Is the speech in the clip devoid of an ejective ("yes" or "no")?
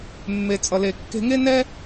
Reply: no